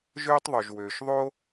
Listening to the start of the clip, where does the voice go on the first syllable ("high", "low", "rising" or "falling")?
high